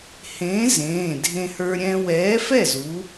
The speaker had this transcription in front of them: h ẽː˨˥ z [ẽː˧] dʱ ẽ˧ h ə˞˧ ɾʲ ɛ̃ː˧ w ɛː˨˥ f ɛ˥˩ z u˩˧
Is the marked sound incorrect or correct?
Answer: incorrect